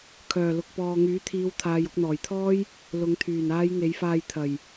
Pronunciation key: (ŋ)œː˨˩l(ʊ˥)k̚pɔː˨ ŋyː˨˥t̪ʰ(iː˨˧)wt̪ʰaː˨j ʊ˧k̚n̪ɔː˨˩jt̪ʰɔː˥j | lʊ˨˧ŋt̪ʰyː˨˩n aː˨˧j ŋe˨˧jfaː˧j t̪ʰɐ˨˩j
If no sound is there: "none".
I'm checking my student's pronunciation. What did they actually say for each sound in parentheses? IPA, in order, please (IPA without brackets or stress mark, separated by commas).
kʰ, ʊ˨, iː˨˧